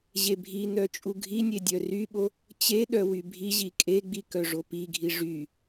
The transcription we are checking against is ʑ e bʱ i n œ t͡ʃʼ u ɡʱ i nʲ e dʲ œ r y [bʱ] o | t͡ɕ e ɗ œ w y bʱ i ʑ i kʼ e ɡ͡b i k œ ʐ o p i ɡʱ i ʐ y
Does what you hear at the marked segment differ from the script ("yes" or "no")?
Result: yes